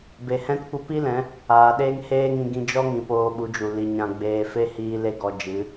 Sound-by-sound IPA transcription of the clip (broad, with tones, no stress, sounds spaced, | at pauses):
b e˨ h ɛ̃˦ t kʷ ə˦˨ p i˦ l ɛ̃˨˦ | aː˨ ɗ eː˦ ŋ h eː˦ ŋ ĩ˧ ɡ ĩ˧ d͡ʒ ɔ˦ ŋ ĩ˨ p oː˧ ɓ u˨˦ d͡ʒ u˨ l i˨ ɲ ã˧ ɡ͡b eː˧ f e˦ h iː˧ l e˦ ɡ ɔ˧ d͡ʒ ɨ˨˦